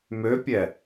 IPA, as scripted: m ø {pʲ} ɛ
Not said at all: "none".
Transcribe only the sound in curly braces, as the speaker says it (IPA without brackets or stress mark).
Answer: pʲ